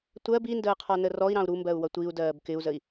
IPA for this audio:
tʷ ɜ b i n d əː qʰ ɔ n ə r ɔ i̯ ɾ ɑ̃ u̯ ɾ u m b ɜ u̯ w ʌ tʷ i u̯ d ɜː b k ɪ u̯ z ə i̯

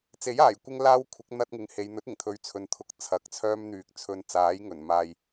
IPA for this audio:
t͡s e˨˥ j aː˨˩ j kʷ ɪ˥ ŋ l aː˥ w kʷʰ ɪ˨˥ k̚ n̪ ɐ˥ t̚ ŋ ɪ˨˧ ŋ h e˨˧ j n̪ ɵ˨˥ t̚ ɪ˨˩ ŋ t̪ʰ ɵ˨˧ ɥ t͡sʰ ɵ˨˧ n t̪ʰ ʊ˨˥ k̚ t͡sʰ ɐ˨˥ k̚ t͡sʰ œː˥ m n̪ yː˨ k̚ t͡sʰ ɵ˧ n t͡s aː˨˥ j ŋ ɵ˨˩ n m aː˨ j

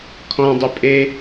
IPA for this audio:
kʰ ɔ̃ dˤ ʏ pʼ e

